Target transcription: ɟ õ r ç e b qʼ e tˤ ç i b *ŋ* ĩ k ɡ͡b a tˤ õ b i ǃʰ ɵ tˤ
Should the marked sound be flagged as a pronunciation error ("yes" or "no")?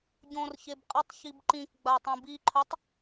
yes